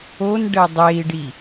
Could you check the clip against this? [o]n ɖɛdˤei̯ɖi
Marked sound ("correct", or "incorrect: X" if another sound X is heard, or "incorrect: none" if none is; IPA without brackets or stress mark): correct